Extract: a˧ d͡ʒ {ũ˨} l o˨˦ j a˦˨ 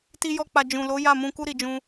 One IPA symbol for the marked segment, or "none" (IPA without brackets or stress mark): ũ˨